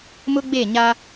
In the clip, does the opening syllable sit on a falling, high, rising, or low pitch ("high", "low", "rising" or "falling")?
high